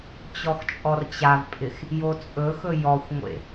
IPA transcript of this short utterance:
t͡ɕ ɔ x t͡ʃʼ ɔ r t͡ɕ a v pʼ ɪ x | j o t͡sʼ ɵ x ɵ j ɔ xʷ ŋʷ ḛ

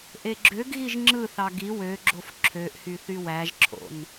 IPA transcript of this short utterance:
ʔ e ɡ͡ǁ ø ɡ ɣ i ʒ ŋ͡ǁ ɯ θ ɑ ɡ i w ø ɡ͡ǁ o f ǁʰ ø ʔ h y θ y w æ ʒ ǁʰ o̰ n

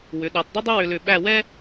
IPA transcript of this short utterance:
w ʏ˩˧ ɗ ɤ˩˧ tˤ dˤ ʏ˥ dˤ ə˥ w ʏ˧ l ʏ˧˩ ɓ æ˥˧ w ɛ˥

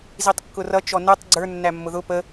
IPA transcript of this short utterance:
z i tˤ kː ʊ r ʌ t͡ʃ ɔ n ɛ tˤ ɡ͡ǀ ə˞ nː æ mː ʊ ð ʊ p ə

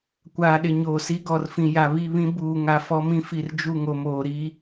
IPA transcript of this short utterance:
kʷ aː˨ ɗ ɪ˨ ɲ oː˨ s i˦ ɡ ɔ˨ r f ĩ˨ j a˨ β i˦˨ β ĩ˦ b uː˨ ŋ a˨ f ɔ˦ m ĩ˦ f i˨ r d͡ʒ u˦˨ ŋ o˨ m oː˨ ɾ i˦

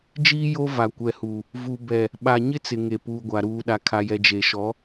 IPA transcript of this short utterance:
d͡ʒ iː˦ j o˦ v a˨ kʷ ɛ˨ h u˨ | v u˨ b ɛ˨ | ɓ a˨ ɲ ɪ˦ t͡s ɪ˨ ŋ e˨ p uː˨ ɡʷ a˨ ɾ uː˨ ɗ a˨ kʰ a˨ j ɛ˨ d͡ʒ e˨ ʃ ɔ˨˦

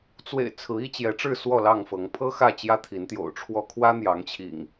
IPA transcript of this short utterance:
t͡s w ḛ˨˩ ɪ̯ t͡sʰ ɹ̩˨˦ i˦ t͡ɕ j ɛ˨˦ ʈ͡ʂ ɻ̩˥˨ s w ɔ˥˨ l ɑ˥˨ ŋ f ɤ˨˦ ŋ pʰ ɤ˦ x ä˥˨ t͡ɕ j ä˦ t̪ʰ i˨˦ n t̪ j o̰˨˩ ʊ̯ ʈ͡ʂʰ w ɔ˦ kʰ w ä˦ n̪ j ɑ˨˦ ŋ t͡ɕʰ ḭ˨˩ ŋ

